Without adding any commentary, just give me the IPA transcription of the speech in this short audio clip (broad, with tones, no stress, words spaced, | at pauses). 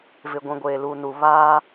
vɪ˨ɡʷĩ˨ ɡʷeː˨luː˨nu˨ βaː˦